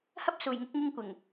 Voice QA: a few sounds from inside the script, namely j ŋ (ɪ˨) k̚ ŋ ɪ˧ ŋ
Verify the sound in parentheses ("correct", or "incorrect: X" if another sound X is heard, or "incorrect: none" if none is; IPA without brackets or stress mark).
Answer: incorrect: ɪ˨˥